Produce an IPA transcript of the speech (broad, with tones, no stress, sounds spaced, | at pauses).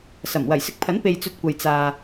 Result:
s ɐ˨˩ m w ɐ˨˩ j s ɪ˧ k̚ pʰ ɐ˨˥ n p e˧ j t͡s ɵ˧ t̚ kʷ ɐ˨ j t͡s aː˨